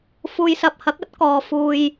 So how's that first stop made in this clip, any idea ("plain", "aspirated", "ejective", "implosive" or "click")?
plain